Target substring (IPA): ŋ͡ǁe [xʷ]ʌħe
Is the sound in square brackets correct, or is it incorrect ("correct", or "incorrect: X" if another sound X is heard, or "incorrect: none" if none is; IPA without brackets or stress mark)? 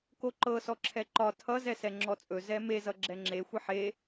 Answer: correct